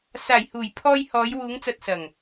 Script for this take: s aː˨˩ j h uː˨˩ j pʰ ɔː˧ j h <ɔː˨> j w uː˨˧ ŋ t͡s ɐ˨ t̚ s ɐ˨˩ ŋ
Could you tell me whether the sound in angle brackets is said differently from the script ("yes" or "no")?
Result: yes